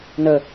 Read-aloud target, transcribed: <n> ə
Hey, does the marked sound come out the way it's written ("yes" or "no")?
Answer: yes